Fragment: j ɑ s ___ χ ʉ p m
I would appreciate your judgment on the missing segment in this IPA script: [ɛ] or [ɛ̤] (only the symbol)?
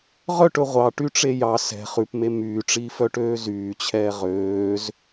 ɛ̤